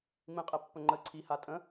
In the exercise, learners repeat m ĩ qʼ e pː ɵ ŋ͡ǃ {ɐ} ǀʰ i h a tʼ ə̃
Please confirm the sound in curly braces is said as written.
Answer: no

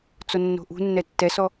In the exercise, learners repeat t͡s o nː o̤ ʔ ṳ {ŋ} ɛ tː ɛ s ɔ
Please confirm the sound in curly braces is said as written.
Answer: no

